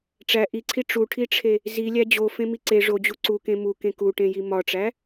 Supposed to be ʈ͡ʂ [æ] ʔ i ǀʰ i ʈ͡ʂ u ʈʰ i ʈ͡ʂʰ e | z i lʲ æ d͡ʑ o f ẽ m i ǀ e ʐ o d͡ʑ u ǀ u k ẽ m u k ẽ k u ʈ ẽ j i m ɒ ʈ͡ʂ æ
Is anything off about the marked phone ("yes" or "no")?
no